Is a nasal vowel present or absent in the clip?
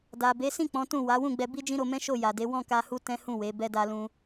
present